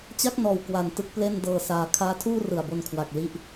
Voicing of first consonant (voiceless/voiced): voiceless